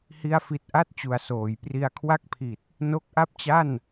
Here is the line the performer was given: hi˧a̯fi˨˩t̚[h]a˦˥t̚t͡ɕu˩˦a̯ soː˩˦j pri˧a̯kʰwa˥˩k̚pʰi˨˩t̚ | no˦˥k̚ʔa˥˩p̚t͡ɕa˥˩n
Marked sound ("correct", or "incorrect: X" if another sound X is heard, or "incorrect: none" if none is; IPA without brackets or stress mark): incorrect: ʔ